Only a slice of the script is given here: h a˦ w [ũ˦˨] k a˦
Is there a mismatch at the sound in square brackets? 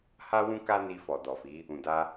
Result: yes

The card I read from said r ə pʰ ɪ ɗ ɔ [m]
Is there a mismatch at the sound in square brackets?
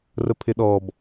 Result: yes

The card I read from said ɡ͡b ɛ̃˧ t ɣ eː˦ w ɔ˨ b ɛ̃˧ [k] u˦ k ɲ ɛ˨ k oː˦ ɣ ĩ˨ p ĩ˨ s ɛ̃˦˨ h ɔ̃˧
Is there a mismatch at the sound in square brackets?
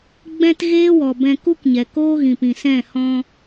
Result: no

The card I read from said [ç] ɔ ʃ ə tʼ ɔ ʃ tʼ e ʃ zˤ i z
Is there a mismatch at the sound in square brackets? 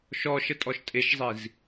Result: yes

